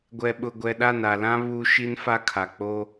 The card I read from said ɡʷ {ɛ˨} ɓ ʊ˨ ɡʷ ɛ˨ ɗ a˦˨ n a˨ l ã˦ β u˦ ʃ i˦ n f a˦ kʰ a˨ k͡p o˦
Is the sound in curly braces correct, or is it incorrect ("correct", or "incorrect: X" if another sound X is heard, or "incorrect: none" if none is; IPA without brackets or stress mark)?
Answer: correct